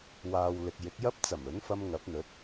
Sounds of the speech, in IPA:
waː˨wlɪ˨k̚ jɪ˨˥k̚jɐ˥p̚ t͡sɐ˨˩mɵ˨˥nfɐ˧m ŋɐ˨˥p̚n̪ɵ˨˥t̚

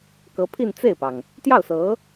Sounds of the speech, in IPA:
kɤ˧˥pʰi˥˧nt͡se˥˩ɪ̯pɑ˩ŋ | t̪jɑ˥˩ʊ̯sɤ˧˥

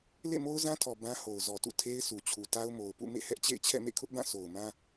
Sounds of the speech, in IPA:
lḛ˦˨mo˦ʊ̯zã˦tʰɔ˨ bã˦ho˨ʊ̯zɔ˨tṵ˦˨ tʰe˦ɪ̯su˨ t͡ɕʰu˨ta˦ʊ̯ mo˨ʊ̯pṵ˦˨ mḛ˦˨hɛ˦ʔt͡ɕḛ˦˨ɪ̯ t͡ɕʰɛ̰˦˨mḛ˦˨kʰʊ˦ʔbã˦˨ so˨ʊ̯mã˦

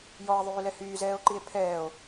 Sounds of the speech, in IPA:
jɔe̯ðˤyːlɛ hyːzɛːo̯ǃie̯ pʰɛːo̯

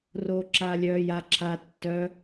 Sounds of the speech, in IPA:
roːǁaːlʲœːj a ǁʰa tːœ

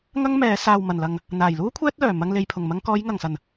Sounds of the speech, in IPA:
ŋɐ˥ŋmɛː˨˧ saː˨wmɐ˨˩nlɐ˨ŋ | n̪aː˨˩jluː˥ kʷʰɛː˥t̚lœː˨˩ mɐ˧ŋle˨j pʰʊ˨˩ŋmɐ˧ŋ kɔː˨˧jŋɐ˨˩ŋ sɐ˨˩n

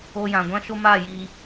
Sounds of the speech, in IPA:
o˧jã˨ɡʷã˦ʃo˦ ma˦˨jiː˧

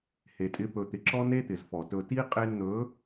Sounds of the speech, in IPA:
he˨tʼɪ˧ pɵ˨ t̪ɪ˨ǁɔ˦ne˦ t̪ɪ˨zfɔ˨tɵ˧ ti˦ qʼe˧nn̪ɵ˨˦

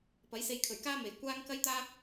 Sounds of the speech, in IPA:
pɐ˨˥jse˧j kʰɵ˨˩ɥkaː˥ me˨˩j kʷaː˥ŋ kɐ˥jt̪aː˥

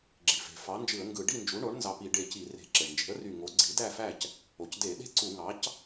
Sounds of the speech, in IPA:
ɡ͡ǁi˩fe̤˩ fɑ˩˥nd͡ʒɯ˧˩˧ə̯ŋɡɯ˧˩˧ ɖi˥˨nd͡ʒu˩˥ɳo˩˥ɳ nzɑ˧˩pi˧˩˧ ɖe˧˩ci˧˩˧re̤˧˩˧ ǁe˩ɳnd͡ʒe̤˩˥ə̯ry˧˩ ŋo˩˥ ɡ͡ǀi˩˥dæ˥˨fæ˥˨c | o˩cde˧˩˧ ɗe̤˥˨ ǀu˧˩˧ŋɑ˩˥c

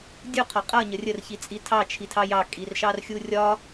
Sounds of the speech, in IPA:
dʲu qʰɒqʼʌ ɲərʲər çit͡sʼitʰɑ t͡ʃʰitʰɑjɑ kʼirʃɑrxʲurʲɒ

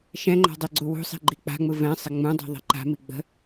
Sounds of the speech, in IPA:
ʃɛ̃ŋ͡ǃa̤ dˤiɡ͡ǀuwṳsˤi̤ ɡ͡ǃik͡pa̤ŋ͡mɯ vɛ̃sˤɪ ŋ͡mũdˤi̤ ðˤi̤ǃa̤mi ɡ͡bə̤

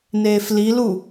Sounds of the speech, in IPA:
neːfli lu

